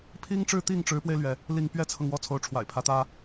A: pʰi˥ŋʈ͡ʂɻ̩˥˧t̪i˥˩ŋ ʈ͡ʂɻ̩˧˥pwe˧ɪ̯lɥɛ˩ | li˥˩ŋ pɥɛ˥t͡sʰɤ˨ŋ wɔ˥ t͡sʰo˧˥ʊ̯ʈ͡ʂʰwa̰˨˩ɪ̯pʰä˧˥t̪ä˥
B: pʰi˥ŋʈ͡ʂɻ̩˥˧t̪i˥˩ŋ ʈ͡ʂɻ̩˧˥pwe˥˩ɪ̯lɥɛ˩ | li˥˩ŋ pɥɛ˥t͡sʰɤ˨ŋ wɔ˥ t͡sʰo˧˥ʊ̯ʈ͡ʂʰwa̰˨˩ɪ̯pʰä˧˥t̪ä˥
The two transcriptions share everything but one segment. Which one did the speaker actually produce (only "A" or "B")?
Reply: A